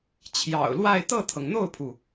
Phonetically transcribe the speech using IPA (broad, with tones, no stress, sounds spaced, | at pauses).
t͡ɕʰ j ɑ̰˨˩ ʊ̯ l w a˥˧ ɪ̯ t̪ ɤ˥˩ t̪ʰ ɤ˩ ŋ n̪ o˥˩ ʊ̯ pʰ u˩